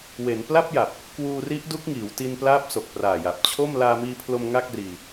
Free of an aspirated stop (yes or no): no